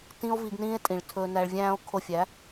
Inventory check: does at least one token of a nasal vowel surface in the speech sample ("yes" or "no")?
yes